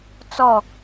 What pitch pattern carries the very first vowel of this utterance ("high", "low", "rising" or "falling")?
falling